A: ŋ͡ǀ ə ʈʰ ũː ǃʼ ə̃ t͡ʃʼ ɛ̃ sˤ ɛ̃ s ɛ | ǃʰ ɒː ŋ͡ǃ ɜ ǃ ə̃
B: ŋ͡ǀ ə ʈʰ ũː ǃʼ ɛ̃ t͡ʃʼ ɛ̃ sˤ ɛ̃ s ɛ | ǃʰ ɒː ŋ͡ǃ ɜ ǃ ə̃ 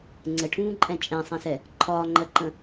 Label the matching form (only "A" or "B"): B